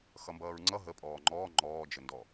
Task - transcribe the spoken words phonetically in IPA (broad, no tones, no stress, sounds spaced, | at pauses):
x ʌ m b ʌː ɹ ŋ͡ǀ ʌ ɦ ə pʼ ɔː ŋ͡ǃ ɔː ŋ͡ǃ ɔː d͡ʒ ə n d ɔ